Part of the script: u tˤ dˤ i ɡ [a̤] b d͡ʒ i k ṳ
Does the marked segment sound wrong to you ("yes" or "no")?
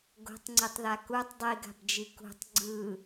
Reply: no